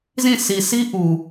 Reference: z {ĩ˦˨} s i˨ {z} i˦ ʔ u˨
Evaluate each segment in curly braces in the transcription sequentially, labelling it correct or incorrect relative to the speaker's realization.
correct, incorrect: s

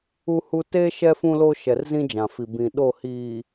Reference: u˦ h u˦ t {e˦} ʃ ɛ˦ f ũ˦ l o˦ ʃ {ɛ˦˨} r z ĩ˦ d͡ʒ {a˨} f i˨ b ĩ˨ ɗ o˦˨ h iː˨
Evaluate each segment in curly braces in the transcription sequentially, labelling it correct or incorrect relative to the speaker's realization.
correct, incorrect: ɛ˨, incorrect: ã˨

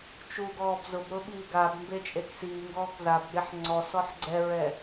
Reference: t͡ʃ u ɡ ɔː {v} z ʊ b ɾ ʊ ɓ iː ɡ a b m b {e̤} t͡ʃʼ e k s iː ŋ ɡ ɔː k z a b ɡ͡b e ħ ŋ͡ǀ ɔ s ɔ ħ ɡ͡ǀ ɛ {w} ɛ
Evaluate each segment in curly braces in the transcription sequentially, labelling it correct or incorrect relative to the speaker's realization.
incorrect: b, incorrect: e, incorrect: ɹ

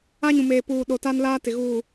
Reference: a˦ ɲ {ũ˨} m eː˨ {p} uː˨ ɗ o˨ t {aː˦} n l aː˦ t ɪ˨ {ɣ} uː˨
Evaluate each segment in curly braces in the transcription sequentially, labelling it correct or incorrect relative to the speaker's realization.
correct, correct, incorrect: a˦, correct

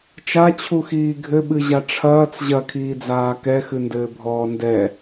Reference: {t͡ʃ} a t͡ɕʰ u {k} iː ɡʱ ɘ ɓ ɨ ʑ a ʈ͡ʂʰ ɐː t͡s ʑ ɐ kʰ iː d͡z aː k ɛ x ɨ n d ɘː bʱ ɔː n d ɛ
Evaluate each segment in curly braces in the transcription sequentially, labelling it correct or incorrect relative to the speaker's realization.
correct, incorrect: x

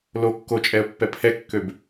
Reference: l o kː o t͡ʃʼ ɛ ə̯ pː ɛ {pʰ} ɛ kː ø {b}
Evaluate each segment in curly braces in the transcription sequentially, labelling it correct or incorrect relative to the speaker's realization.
correct, correct

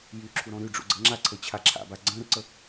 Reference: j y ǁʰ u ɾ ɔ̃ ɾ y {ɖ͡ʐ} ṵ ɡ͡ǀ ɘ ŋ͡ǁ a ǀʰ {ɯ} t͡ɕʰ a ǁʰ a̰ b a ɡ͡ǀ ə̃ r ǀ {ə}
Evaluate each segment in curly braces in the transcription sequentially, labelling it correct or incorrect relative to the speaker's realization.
correct, incorrect: ɤ, correct

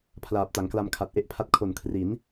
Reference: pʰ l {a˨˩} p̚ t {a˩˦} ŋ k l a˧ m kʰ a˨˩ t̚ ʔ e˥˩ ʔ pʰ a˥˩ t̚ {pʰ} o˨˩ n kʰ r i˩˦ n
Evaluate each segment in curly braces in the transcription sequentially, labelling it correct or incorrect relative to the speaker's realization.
incorrect: aː˨˩, correct, incorrect: kʰ

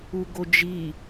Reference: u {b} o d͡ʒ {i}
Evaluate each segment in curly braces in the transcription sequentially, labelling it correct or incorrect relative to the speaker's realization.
incorrect: ɡ, correct

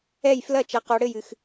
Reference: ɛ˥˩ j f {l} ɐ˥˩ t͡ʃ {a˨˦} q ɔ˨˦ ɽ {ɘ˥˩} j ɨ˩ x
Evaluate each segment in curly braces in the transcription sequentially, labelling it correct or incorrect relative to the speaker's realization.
correct, incorrect: ɐ˨˦, correct

